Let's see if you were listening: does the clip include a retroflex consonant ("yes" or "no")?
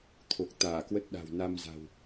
no